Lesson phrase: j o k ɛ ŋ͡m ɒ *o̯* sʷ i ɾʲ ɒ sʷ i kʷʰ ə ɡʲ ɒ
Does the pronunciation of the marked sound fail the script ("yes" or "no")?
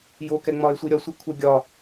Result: yes